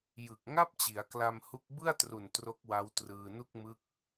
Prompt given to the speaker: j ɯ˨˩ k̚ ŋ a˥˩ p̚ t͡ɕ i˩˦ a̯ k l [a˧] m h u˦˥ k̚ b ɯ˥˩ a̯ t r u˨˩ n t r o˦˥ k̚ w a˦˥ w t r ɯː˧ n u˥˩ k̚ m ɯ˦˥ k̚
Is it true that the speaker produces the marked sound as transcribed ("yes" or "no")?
yes